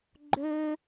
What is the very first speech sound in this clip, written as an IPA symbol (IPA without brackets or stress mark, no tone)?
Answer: ɡ͡ǃ